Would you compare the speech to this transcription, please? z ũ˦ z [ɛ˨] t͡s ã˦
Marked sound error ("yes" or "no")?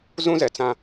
no